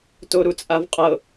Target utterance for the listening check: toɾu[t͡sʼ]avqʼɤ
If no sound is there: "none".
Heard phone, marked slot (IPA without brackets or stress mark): t͡sʼ